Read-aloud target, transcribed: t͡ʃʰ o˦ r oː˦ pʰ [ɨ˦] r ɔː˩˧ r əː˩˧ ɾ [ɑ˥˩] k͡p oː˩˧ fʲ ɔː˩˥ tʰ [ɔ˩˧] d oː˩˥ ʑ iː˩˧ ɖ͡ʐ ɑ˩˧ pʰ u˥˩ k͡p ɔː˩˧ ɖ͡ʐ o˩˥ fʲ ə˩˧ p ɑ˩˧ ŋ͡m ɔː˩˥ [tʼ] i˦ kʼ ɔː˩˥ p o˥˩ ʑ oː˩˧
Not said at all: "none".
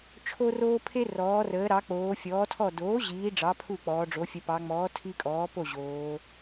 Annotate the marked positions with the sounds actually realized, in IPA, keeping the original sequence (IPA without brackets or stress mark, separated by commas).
e˦, ɑ˩˧, ɔ˥˩, tʰ